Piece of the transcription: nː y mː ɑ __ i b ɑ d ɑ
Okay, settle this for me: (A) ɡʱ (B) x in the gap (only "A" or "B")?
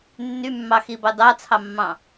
B